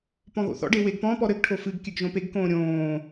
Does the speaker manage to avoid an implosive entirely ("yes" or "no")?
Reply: yes